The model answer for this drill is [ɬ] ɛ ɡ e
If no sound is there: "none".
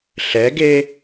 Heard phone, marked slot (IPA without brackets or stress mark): ɬ